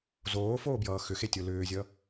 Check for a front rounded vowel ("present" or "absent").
present